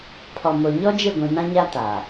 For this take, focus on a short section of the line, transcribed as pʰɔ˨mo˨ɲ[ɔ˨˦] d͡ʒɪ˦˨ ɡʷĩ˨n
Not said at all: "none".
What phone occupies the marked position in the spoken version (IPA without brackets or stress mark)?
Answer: ɔ˦